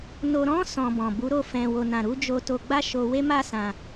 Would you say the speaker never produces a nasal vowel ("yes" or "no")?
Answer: no